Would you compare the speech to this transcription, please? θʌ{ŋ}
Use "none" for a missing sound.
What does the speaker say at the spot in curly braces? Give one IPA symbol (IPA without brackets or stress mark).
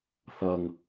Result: ŋ